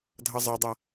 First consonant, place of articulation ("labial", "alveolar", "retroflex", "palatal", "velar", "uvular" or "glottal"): alveolar